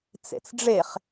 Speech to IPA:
t͡sḛt͡sɖ͡ʐeχ

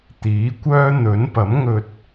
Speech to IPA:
t̪iː˨˥kʷœː˥ n̪ɵ˨˥n pɐ˨˥mŋɵ˧t̚

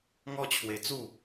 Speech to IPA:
ŋɔ˦t͡ɕʰwe˧ t͡su˥˧

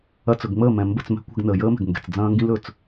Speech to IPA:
ɐ˧t͡sɵ˨ɡŋ͡məː˦˨ mɛ̃˨mbə˦˨t͡smɛ̤˦ kʷɛ̤˧ɡnəː˨jəː˦mɛ̤˨ɡ ŋɡɛ̤˨t͡sd͡zɐ̃ː˦ŋɡĩ˦l ɵː˨t͡s

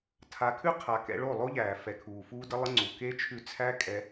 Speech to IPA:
tʰa˨˦kʰʉ˦ qʰa˨ kɛ̰˧ɭo˦˨lˠo˦ʎæː˨ fɛ˨kʰuː˨fuː˦də˦ lˠə˦ŋ͡ǀu˨ ke˦ t͡ʃʰʉ˧t͡sʰæ˦kʼɛ˧

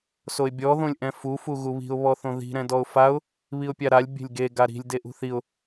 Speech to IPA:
soɪ̯bʲɔ ðõlʲʔɛ̃fu fuɣuβi̤ʊ̯ βɔθõði̤ ɾɛ̃dɔʊ̯faʊ̯ | βiʊ̯pʲaɾalʲ bʲe̤lʲɡe ɡaɾi̤lʲ deʔṳθiʊ̯

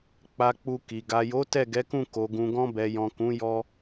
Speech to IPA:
k͡pa˧k͡pu˧ki˨ ɡa˨jo˨˦ tɛ˦˨ɡɛ˨˦kũ˦˨ ko˨ɡũ˨ɡɔ̃˧ bɛ˨jɔ̃˨ kũ˨˦jɔ˧

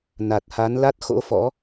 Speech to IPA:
na˨˩t̚ha˨˦nla˦˥t̚ xo̰˧˥fɔ̰˧˥

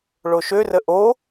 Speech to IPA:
ɭoʃørə ʔo

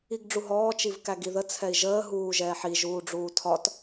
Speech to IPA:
iɡɖ͡ʐuɦɔː t͡ʃivkæɡiðə t͡sʰɛi̯ʒəː ɦuːʒɛːħi ʒuːɖ͡ʐuːtʰɒt

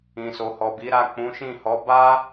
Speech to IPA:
ĩ˨so˨hɔ˨bi˨˦ ɾa˦˨ k͡pũ˨˦ʃĩ˦˨hɔ˨˦ ba˦

